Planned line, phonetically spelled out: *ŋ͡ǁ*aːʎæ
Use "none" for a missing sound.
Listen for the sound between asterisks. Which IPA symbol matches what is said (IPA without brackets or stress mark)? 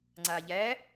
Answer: ŋ͡ǀ